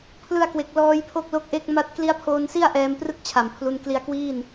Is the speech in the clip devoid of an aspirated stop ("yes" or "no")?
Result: no